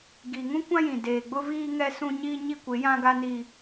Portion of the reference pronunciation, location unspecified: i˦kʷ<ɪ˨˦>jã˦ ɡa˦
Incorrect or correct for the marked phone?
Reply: correct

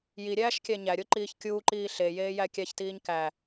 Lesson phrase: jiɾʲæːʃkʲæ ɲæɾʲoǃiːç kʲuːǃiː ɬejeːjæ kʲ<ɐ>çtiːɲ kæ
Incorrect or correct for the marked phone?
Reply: incorrect: æ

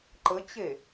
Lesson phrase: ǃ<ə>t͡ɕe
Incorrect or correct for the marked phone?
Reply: correct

